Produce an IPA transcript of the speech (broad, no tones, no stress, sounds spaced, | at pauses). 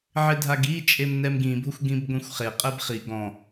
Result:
ʕ ɪ dʱ a ɡ i t͡ʃʼ e m n ɛ m ɡ ĩ bʱ ʊ xʷ ɡ ĩ b ɡʷ ĩ xʷ χ e qʼ ɛ b χ i ɡ ɔ̃